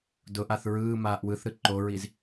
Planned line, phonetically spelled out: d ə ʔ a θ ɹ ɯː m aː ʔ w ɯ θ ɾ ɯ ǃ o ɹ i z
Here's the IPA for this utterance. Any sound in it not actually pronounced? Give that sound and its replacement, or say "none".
ə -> ʊ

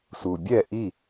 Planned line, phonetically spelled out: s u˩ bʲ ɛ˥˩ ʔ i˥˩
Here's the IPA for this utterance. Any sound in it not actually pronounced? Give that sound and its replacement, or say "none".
none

